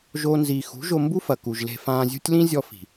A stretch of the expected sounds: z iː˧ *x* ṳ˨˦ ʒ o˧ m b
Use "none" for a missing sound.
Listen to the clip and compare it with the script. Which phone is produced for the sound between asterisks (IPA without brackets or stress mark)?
x